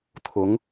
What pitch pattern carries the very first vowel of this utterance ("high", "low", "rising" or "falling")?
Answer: rising